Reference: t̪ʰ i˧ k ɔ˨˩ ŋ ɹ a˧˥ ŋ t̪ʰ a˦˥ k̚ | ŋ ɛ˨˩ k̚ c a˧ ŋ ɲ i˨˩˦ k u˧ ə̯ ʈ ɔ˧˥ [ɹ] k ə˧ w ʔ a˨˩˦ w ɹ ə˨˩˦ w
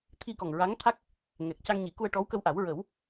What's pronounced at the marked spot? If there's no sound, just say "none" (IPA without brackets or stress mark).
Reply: w